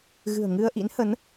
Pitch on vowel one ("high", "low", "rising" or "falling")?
low